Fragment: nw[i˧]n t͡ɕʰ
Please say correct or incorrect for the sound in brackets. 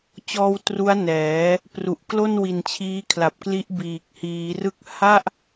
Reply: incorrect